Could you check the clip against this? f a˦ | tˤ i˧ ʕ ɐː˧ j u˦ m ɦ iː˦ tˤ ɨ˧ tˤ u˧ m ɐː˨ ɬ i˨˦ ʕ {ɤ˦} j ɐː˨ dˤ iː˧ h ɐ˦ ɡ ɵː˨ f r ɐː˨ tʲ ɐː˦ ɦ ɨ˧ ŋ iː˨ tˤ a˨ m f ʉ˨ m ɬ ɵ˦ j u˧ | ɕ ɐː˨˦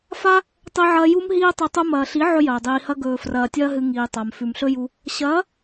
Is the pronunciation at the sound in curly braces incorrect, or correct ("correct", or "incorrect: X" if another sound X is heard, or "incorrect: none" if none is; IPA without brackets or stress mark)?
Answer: incorrect: ɵ˦